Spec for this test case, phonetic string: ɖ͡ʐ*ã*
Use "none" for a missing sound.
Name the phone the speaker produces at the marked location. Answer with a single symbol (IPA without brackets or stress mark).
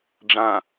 ã